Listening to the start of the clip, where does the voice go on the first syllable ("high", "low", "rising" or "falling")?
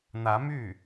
rising